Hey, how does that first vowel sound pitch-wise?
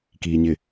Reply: low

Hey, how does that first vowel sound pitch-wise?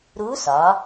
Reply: rising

